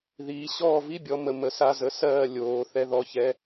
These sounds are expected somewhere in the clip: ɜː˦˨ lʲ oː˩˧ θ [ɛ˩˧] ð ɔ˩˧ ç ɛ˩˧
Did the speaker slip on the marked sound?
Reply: no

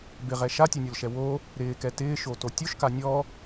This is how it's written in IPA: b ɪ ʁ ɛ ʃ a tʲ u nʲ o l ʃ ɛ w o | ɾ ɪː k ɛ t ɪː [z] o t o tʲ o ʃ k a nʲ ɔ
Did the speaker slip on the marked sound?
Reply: yes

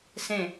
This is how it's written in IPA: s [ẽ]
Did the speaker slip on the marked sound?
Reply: no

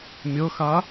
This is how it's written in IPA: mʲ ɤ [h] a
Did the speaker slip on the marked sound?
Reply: yes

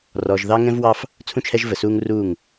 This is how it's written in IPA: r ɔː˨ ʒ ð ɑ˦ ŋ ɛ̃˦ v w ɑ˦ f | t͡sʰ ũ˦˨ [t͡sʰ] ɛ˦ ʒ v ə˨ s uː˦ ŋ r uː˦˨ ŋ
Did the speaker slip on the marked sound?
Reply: yes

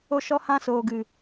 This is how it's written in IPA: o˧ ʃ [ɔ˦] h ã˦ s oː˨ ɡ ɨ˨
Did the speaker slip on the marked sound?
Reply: no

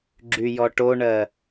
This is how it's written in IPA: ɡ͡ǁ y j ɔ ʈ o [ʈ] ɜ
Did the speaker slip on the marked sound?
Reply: yes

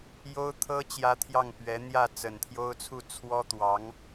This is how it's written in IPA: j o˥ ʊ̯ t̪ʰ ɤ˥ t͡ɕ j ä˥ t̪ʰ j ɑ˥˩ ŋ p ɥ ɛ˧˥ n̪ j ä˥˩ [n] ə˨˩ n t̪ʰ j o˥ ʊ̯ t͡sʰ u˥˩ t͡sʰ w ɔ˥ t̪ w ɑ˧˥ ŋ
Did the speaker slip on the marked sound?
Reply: yes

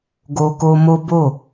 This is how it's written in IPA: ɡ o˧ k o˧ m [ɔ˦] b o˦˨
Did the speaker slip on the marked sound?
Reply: yes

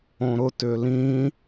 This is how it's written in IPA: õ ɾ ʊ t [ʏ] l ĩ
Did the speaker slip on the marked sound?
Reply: no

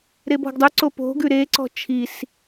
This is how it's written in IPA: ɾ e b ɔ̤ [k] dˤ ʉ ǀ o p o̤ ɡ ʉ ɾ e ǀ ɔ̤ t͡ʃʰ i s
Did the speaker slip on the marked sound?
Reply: yes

